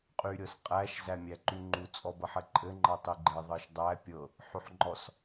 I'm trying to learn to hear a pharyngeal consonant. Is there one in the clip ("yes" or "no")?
yes